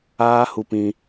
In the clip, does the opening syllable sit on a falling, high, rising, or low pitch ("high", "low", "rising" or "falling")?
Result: high